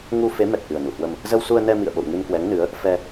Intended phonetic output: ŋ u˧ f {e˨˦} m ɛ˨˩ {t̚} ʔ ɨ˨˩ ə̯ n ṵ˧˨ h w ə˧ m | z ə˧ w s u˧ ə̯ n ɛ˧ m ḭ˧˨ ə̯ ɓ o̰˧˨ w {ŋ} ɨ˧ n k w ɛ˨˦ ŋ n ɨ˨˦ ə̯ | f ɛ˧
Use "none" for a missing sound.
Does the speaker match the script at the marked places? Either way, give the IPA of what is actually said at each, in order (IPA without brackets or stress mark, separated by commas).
e˨˦, t̚, ŋ